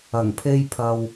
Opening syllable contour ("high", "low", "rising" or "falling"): low